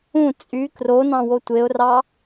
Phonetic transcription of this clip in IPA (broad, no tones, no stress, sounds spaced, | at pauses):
ũ t͡sʼ y k r o n ɑ̃ w o tʷ e ʊ̯ r ɑ